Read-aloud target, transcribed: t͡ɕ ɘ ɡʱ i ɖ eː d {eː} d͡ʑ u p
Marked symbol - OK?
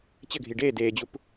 yes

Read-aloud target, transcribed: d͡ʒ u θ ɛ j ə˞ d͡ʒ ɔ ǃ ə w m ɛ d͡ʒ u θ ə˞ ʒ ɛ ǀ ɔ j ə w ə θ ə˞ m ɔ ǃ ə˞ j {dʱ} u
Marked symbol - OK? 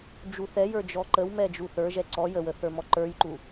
no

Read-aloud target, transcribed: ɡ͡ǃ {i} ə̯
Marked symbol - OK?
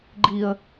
yes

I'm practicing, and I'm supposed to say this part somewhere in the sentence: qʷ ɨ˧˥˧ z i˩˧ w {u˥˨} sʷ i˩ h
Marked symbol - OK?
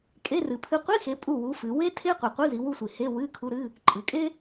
yes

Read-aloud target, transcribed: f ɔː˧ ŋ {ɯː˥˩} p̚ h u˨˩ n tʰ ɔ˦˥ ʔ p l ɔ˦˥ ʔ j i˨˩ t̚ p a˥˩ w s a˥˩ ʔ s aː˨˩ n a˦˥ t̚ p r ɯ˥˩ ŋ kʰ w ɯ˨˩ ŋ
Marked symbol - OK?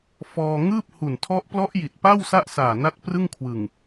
yes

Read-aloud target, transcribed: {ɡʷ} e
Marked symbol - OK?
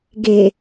no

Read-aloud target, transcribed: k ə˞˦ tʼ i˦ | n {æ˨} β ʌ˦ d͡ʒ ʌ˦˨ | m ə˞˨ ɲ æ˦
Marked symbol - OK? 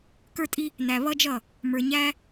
yes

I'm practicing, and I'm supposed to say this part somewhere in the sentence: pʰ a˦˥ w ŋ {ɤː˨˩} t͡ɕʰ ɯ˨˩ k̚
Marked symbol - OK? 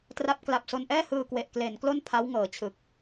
yes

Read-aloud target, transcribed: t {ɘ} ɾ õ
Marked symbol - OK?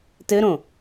yes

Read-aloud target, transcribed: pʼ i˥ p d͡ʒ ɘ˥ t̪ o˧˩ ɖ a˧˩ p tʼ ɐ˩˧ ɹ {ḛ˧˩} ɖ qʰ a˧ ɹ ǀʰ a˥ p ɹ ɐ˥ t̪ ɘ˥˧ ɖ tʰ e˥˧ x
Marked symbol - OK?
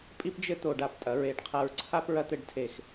no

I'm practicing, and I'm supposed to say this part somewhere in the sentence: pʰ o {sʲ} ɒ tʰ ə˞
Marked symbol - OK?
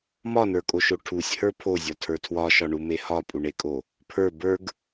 no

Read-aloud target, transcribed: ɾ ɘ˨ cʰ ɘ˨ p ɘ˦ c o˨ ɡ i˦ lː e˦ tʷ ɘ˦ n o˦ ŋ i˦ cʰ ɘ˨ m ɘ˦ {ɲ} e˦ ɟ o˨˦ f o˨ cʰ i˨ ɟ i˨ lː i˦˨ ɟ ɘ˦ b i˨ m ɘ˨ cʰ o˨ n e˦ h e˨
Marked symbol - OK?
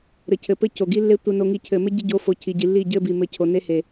no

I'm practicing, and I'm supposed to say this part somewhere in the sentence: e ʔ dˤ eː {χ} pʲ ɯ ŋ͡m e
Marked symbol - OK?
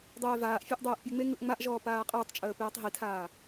no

